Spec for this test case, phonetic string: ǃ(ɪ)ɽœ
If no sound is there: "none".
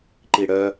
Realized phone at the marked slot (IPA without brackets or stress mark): i